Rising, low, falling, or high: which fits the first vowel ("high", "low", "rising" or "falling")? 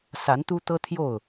rising